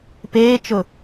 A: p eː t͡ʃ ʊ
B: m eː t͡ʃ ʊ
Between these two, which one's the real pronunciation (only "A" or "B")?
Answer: A